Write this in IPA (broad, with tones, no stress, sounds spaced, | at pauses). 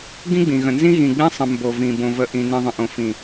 ɡ ĩ˦ ɡ͡b ĩ˨ ɣ ə̃˨ n z ĩ˦ ɣ ĩ˨ ɡ͡b ĩ˦ sˤ ə̃˨ m b o˨ v ĩ˨ b õ˨ v ə˨˦ ʔ ĩ˨ n ĩ˨ ðˤ ə̃˨ ʔ õ˨ f ĩ˨